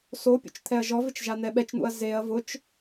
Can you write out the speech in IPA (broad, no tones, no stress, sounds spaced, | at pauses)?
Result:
s o pʲ ṵ t͡ʃ t̪ʰ ɛ ɐ̯ ʒ ɔ v ɪ t͡ʃ ʒ a n̪ ɛ ɓ ɛ t͡ʃ n̪ ṵ ɐ̯ z e ɐ̯ v ʊ t͡ʃ